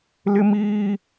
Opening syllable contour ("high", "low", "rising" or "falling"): high